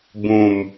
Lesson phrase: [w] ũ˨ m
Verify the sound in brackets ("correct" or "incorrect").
incorrect